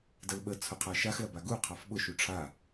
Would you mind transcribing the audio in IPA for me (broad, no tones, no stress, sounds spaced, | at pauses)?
d ə l ɓ ə t͡sʰ ʊ qʰ a ʃ a x l ɐ b a ɡ u qʰ ɑ f ɓ ʊ ʃ u ʈ͡ʂʰ a